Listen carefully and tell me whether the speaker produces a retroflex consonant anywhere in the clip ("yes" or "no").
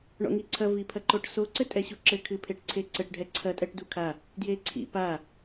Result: yes